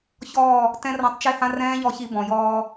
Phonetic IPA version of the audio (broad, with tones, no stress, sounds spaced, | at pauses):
ç ɔː˦˨ | t ɛ̃˦ r ɔ̃˧ tˤ t͡ʃ e˦ h ã˦ r ɛ̃ː˦ ʎ ɔ˧ ç i˧ b ɔ̃˨ j ɔː˧